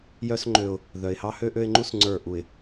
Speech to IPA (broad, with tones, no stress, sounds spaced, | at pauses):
j œ˦ s ŋ͡ǃ ø˦ ʊ̯ | ð œ˨ ɪ̯ h ɑ˦ h ø˦ ʔ ø˦ ɪ̯ ŋ͡ǃ u˦ s ŋ͡ǀ ə˞˦˨ ʔ u˨ ɪ̯